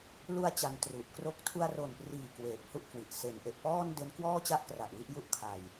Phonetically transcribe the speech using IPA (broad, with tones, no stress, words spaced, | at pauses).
lu˧a̯ t͡ɕa˧ntru˨˩ʔ kro˥˩k̚ tʰu˧a̯ro˨˩npriː˨˩ kweː˨˩p̚hu˥˩ʔkwi˨˩ʔ se˩˦nʔe˨˩ʔpɔː˥˩n de˦˥nkwɔː˥˩t͡ɕa˥˩ʔkra˨˩ʔ wi˥˩ʔ ju˥˩ʔkʰa˧j